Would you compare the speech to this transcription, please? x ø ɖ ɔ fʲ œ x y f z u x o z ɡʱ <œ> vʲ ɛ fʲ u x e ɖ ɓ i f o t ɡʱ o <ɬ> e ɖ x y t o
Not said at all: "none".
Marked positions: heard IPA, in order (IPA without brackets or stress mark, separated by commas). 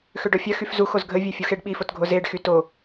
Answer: ə, z